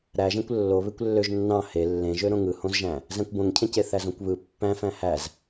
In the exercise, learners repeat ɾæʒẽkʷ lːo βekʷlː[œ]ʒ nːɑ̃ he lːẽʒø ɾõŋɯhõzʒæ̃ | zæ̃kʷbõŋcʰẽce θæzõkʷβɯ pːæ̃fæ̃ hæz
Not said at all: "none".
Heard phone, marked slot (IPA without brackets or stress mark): ø